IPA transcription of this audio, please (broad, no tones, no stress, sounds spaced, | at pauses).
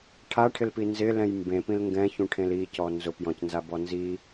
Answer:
ʈʰ a ʈʰ ɪ l p i n z ɪ l ɛ̃ j m b ẽ p ĩ l ŋ ɡ ɛ̃ ç ũ ʈʰ ẽ l i c ɔ n z ʊ p j ɔ̃ c n z a b ɔ n z i